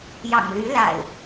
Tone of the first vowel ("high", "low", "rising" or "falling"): low